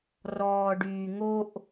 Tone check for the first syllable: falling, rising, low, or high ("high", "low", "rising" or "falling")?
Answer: high